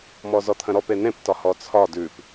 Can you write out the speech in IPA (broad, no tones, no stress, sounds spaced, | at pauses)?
m ɔ z ɔ t̪ʰ ə̃ ɾ ɔ p e n ẽ p t ɒ h ɔ t͡sʰ ɒ d ʉ p